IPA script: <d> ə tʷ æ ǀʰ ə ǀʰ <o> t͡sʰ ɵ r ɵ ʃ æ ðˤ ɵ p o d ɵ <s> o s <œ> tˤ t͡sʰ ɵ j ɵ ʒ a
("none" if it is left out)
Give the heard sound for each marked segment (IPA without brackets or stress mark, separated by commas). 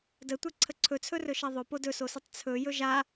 d, ɵ, s, ə